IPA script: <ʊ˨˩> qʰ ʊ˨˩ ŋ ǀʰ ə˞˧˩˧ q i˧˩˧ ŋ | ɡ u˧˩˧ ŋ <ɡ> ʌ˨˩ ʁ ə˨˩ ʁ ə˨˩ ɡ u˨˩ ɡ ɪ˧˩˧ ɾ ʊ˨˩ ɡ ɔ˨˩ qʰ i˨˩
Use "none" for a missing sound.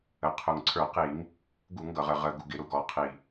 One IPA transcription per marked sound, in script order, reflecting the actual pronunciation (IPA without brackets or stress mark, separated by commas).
ə˨˩, ɡ